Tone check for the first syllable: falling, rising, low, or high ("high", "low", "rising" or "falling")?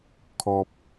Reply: high